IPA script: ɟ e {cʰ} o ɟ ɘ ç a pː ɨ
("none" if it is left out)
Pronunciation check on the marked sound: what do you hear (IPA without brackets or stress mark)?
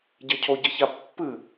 cʰ